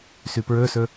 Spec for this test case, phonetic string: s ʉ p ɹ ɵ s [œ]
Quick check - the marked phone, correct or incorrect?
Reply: incorrect